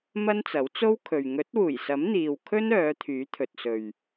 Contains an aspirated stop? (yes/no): yes